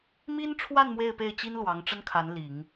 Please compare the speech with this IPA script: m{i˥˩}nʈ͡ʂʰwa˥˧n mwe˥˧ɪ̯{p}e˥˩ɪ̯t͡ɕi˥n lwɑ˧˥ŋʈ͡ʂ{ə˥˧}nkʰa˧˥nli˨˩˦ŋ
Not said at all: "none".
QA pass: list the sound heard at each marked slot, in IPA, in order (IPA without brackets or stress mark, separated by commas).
i˥, p, ə˥